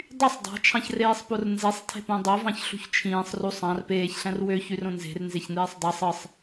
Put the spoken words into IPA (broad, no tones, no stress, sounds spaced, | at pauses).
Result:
dˤ y sˤ dˤ ɑ̤ t͡ʃʰ ɑ̃ ç r eː sˤ p o r n z e sˤ tʰ e̤ p õ dˤ o v ɑ̃ ç ɬ ṳ ç t͡ʃʰ ĩː sˤ r u sˤ ɑ̃ r p eː ç ɬ æ̃ r w ø ç y r õ n z e̤ r n z e ç n̪ eː sˤ dˤ ɯ sˤ ɯ sˤ